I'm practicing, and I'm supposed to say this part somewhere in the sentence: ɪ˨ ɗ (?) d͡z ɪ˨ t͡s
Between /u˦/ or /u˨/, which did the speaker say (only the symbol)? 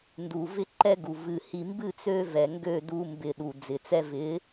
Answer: u˨